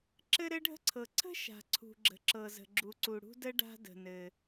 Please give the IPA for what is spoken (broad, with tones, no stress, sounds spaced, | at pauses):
ǁ ɘ˥ ɾ ɘ˥ ɖʱ ə̤˥ ǀʰ ɤ˩ ǀʰ ə̤˥ ʃ a̤˩ ǀʰ ṳ˩ ɡ͡ǁ ə̤˩ ǁ ɤ˩ z ə̤˩ ɡ͡ǁ u˩ ǀ u˩ ɽ ṳ˥ d ə˥ ɖ a̤˥ d ə̤˩ n ɘ˩